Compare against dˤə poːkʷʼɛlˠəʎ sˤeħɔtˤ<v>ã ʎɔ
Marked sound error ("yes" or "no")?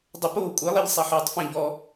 yes